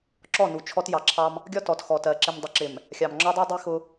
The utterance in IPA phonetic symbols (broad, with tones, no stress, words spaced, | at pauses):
ǁɔ˦˨nu˨˦t͡ʃʰɔ˦t jɑ˨ǁʰɑ˦m | ɡʲɒ˦tɔ˨txɔ˨tɜ˨ ǁɪ˨mdˤʊ˨ǁɪ˨m | xʲɑ˨mŋ͡ǁɒ˦dˤɜ˦ dˤi˦xʊ˦